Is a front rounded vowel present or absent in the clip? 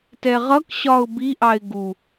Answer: absent